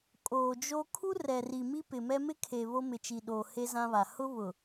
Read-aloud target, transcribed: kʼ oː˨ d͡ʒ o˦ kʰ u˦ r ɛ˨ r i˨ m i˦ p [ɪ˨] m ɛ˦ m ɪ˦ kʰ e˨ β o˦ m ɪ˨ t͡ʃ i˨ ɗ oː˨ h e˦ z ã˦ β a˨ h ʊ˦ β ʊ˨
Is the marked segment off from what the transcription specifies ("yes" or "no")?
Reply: no